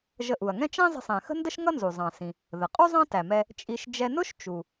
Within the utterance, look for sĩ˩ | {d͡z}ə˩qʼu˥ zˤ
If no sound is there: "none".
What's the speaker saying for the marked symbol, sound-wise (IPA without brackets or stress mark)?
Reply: ð